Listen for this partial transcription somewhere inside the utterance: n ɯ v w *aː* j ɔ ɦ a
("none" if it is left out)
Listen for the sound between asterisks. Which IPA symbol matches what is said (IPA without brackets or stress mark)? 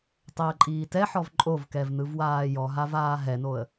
aː